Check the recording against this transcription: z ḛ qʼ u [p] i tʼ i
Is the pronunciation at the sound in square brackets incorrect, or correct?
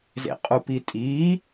correct